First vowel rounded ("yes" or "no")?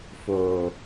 yes